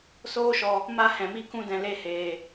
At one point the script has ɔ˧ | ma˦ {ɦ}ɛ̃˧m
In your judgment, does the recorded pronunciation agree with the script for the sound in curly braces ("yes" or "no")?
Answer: no